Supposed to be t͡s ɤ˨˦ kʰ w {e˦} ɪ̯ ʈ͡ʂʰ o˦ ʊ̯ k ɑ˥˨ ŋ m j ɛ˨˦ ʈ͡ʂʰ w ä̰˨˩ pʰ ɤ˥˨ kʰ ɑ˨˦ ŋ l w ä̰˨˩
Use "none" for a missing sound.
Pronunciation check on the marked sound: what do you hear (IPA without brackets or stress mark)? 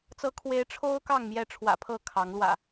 e˨˦